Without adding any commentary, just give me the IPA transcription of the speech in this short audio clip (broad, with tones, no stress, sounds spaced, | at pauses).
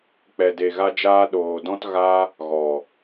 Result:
k͡p ɛ˨ d e˨ ɣ a˧ d͡ʒ aː˧ ɗ oː˨ d ɔ̃˦ t ɣ a˦ | ɣ ɔ˨